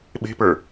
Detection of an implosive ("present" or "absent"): present